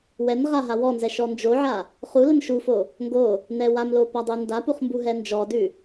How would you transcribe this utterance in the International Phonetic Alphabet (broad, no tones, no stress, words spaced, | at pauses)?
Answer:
wɛnʁa ɦawɔnzɛ ʃɔnd͡ʒoʕa | χu lənʃufo | ŋɡo | nɛwamlo padˤundapuχ mbuɦɛnd͡ʒɔdʉ